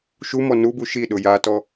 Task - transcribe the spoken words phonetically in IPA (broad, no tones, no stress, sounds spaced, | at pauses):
ʃ u m ɔ n u b u ʃ i ɗ ʊ j a t ɔ